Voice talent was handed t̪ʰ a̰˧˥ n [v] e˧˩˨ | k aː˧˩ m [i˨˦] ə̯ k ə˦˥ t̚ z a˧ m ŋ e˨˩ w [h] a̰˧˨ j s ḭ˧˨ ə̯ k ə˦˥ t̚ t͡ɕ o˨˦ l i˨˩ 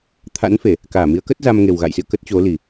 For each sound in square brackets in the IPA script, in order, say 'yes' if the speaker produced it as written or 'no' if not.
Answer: no, yes, no

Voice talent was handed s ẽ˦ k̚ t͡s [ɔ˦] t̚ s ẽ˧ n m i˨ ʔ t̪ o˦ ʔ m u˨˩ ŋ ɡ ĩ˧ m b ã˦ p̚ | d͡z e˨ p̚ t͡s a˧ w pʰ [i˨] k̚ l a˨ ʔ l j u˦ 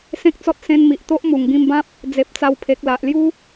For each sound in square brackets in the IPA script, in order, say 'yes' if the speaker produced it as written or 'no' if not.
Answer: yes, no

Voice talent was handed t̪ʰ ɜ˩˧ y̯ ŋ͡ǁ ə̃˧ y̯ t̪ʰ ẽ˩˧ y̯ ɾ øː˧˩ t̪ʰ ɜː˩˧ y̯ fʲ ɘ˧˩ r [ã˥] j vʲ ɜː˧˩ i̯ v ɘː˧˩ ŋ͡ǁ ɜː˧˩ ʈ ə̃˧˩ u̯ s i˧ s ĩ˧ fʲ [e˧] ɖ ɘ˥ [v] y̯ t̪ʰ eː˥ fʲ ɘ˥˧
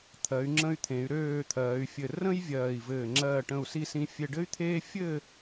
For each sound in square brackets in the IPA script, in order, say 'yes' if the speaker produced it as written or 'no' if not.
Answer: no, yes, no

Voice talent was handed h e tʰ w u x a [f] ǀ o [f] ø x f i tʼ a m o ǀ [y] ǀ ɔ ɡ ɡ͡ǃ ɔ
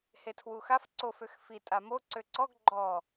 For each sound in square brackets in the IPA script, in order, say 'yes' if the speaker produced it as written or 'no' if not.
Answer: yes, yes, no

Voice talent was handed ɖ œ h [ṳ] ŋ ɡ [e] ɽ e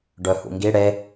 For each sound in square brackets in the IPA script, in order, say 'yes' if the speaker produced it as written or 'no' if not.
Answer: no, no

